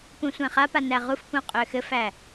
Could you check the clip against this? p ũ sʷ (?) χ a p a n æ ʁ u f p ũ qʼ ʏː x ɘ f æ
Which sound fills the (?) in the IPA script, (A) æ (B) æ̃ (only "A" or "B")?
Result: B